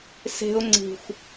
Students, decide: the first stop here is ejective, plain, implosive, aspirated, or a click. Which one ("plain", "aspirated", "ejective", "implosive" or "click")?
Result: click